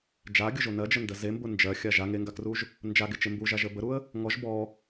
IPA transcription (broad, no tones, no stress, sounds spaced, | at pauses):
d͡ʒ a ɡʲ ʊ ʒ o n ɜ d͡ʒ ə n d ə z e m b ʊ n d͡ʒ ɜ xʲ a ʒ a ŋ e ŋ ɡ a k r u ʒ | n d͡ʒ a ɡ e t͡ʃ e m b u ʒ a ʒ ə b ə ɾ u ə̯ | ŋ ɔ ʒ b ɔ